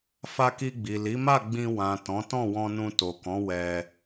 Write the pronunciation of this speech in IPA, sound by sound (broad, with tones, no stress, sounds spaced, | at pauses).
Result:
f a˧ k i˧ ɡ͡b i˨ l i˨˦ m a˦˨ ɡ͡b ĩ˧ w ã˨ t ɔ̃˨˦ t ɔ̃˦˨ w ɔ̃˧ n ũ˧ t o˨ k ɔ̃˨˦ w ɛ˧